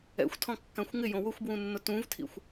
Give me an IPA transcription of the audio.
ɛ̰ xʷ tʰ ɔ̃ kː ã xʷ ŋ ɪ j õ w ʊ xʷ b w ũ nː ʊ t ũ v tʰ ḭ xʷ

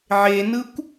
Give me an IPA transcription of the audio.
ʕ e n ɯ kʷ

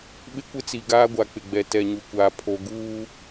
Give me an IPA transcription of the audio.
ɓ ɪ˦ kʷ ɪ˦ t͡s i˨ ɡ aː˦ ɡʷ a˨ k͡p ɪ˨ ɡ͡b ɛ˨ t ɛ˨ ɲ u˨ kʷ aː˨ pʰ o˨ ɡ uː˦

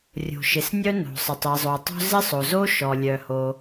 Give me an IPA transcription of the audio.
rʲ o̤˩ ʃ ɪ˩ s nʲ œ˥ n o̤˩ sˤ ɪ˩ tˤ i˩ zˤ o˩ tˤ o̤˥ z ɪ˥ sˤ o˩ z o˥ ʃ ɔ˩ lʲ œ˩ h o˩

